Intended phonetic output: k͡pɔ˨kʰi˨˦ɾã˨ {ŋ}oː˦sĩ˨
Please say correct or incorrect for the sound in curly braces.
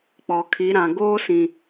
incorrect